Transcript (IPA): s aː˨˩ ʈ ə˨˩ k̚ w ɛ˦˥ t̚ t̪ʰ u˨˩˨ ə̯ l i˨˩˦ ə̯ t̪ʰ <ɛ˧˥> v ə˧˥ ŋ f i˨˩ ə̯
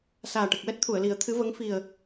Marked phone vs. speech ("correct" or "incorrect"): incorrect